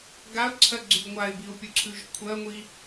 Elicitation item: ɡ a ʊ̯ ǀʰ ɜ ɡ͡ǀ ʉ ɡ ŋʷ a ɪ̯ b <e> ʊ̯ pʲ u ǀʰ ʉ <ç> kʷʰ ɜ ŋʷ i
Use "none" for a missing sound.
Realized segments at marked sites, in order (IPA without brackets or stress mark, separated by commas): i, ʒ